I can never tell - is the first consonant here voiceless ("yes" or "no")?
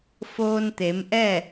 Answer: yes